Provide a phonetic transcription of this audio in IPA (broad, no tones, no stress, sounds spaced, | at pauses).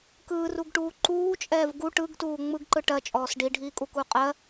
k ɯː r u ɡ ʈ uː ǃ uː t͡ʃʼ ɛː v ɡ u ʈ ɯ ɡ t uː ŋ͡m ɯ ɡ ǃ ɯ ʈ ɜ t͡ʃʼ ɔː s ɖ i ɖʱ iː kʼ u k u qʼ ɜ